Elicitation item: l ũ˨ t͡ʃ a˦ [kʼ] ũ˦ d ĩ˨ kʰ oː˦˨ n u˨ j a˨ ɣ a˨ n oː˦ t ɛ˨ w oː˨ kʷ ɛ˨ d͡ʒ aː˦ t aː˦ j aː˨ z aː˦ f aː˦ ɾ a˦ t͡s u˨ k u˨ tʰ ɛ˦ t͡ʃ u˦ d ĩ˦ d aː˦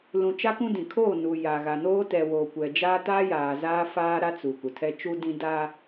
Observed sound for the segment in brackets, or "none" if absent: k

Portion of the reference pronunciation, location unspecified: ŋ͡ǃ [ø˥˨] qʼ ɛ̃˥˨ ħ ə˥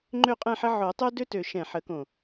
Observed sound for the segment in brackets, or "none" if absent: ø˥˨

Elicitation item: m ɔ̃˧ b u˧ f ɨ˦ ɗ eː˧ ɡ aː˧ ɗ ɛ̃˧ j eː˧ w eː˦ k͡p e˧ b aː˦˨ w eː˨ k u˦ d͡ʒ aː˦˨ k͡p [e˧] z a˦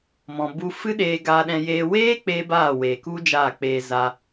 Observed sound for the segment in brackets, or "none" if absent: eː˧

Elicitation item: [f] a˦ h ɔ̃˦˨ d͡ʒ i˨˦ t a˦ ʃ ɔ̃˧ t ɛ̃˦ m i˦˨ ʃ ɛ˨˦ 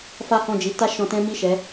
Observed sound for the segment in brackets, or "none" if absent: f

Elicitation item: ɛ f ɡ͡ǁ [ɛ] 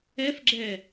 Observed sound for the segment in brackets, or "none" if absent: ɛ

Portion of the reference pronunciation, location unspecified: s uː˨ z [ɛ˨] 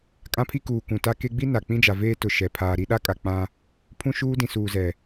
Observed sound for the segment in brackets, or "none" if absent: ɛ˨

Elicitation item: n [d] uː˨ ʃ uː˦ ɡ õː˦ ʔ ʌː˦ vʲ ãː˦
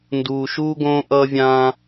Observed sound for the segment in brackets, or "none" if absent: d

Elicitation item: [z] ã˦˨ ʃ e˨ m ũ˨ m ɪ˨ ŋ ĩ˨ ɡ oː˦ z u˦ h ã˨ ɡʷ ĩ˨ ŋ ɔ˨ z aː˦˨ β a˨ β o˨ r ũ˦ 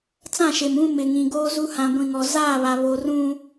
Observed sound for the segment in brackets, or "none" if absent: t͡s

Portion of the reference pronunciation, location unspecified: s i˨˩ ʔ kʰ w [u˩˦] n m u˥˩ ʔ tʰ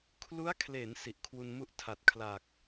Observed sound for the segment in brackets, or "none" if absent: u˧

